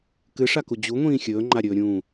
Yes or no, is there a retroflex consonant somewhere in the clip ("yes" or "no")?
yes